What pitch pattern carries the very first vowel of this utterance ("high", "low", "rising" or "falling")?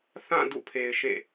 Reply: falling